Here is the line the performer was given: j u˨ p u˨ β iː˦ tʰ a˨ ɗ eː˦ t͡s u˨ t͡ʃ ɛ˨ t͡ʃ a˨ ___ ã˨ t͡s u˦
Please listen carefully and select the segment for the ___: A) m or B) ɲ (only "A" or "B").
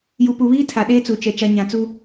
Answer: B